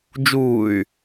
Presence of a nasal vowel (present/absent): absent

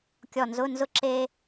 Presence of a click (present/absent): present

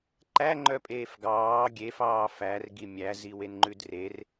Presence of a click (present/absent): present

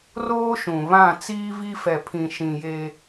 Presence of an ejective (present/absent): absent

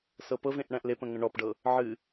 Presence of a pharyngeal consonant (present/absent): present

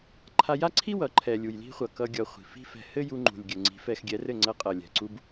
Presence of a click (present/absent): present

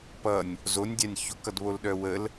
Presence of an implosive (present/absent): present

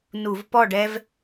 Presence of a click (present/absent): absent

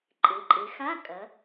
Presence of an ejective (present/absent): present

